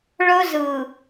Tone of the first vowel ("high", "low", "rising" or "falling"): high